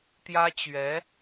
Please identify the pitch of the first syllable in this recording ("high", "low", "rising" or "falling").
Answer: high